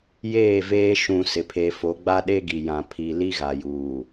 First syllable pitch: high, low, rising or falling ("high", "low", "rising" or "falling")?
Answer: falling